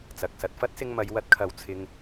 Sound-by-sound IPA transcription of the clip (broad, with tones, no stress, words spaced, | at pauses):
t͡sɐ˨k̚sɐ˧t̚ fɐ˥t̚sɪ˧ŋmɐ˨˧j wɐ˧t̚kʰɐ˨˧w t͡sʰɪ˧ŋ